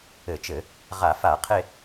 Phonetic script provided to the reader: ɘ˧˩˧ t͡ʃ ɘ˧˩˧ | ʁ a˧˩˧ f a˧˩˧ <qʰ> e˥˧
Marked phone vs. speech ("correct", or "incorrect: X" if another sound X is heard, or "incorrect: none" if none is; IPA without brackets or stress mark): correct